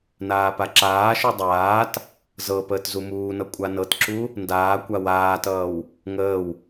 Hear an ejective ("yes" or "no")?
yes